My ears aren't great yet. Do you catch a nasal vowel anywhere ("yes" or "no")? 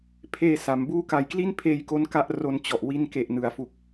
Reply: no